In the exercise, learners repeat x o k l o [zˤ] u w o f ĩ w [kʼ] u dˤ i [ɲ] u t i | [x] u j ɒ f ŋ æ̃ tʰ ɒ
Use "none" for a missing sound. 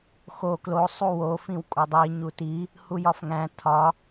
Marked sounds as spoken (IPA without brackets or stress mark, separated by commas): sˤ, kʼ, ɲ, h